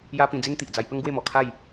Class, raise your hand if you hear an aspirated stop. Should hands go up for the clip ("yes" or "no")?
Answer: yes